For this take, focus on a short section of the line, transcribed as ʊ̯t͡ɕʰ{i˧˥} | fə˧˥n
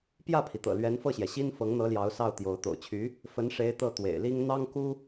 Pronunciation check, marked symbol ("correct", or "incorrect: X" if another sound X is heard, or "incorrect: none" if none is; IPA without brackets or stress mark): incorrect: y˧˥